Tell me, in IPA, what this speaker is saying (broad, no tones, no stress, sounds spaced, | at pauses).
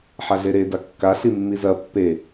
ħ a ɮ e ɾ e d a kː a ɬ i mː i z ɐ pː e